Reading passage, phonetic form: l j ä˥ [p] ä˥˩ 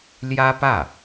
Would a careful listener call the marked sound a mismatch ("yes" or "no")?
no